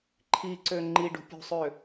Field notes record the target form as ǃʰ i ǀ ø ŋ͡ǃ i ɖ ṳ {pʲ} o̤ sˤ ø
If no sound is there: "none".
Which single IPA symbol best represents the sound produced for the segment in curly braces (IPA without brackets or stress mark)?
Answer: pʲ